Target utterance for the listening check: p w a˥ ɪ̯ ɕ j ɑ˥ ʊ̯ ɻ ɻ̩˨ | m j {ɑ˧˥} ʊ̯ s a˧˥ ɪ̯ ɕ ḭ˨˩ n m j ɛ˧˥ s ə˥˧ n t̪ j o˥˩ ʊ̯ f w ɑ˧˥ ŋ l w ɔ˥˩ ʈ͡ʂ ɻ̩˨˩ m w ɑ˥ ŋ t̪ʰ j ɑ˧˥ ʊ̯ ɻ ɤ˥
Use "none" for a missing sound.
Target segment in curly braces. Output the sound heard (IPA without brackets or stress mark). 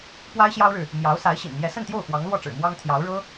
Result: ɑ˧˥